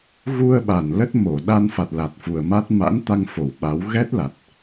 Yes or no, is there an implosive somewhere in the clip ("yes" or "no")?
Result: yes